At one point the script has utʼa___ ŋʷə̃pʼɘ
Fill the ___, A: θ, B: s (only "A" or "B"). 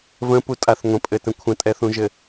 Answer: A